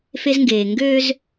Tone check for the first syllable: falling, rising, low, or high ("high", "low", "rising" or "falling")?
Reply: high